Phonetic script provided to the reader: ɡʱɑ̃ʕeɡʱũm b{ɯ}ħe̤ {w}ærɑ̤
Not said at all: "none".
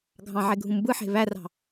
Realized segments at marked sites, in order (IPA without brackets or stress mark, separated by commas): ɯ, β